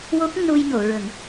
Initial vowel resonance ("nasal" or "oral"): oral